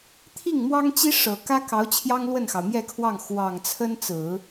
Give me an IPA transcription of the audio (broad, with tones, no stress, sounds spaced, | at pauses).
t̪ʰ i˥˩ ŋ m w ɑ˥ ŋ t͡ɕ i˥ ʂ ɤ˨˩ k ä˥ k ɑ˧˥ ʊ̯ t͡ɕʰ j ɑ˥ ŋ l w ə˥˩ n x ɑ˩ ʊ̯ m j ɛ˥˧ kʰ w ɑ˥˩ ŋ x w ɑ˨˩ ŋ t͡sʰ ə˥ n t͡s ɹ̩˨˩˦